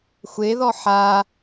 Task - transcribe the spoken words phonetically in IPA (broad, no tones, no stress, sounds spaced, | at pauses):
xʷ e ð ɔ ħ a